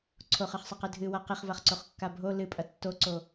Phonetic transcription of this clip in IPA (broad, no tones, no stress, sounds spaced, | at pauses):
ǀʰ o χ ɨ χ sˤ ɐ q ɨ dʱ ɨ w a q i χ v a χ ǀ o χ kː a bʱ o l ɨ pʼ ɐ tː o ǀ o